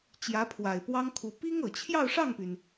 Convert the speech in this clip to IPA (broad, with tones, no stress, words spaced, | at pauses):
t͡ɕjä˧˥pʰwa˨˩ɪ̯pwɑ˥ŋkʰu˧˥ pi˥ŋ ɤ˨˩ t͡ɕʰjɑ˥˧ʊ̯ʂɑ˥˩ŋpy˩n